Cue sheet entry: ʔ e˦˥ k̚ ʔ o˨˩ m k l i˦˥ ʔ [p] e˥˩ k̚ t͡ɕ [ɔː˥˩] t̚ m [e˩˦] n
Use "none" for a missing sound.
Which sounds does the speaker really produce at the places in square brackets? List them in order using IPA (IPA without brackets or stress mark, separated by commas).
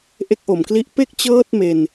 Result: p, ɤː˥˩, e˧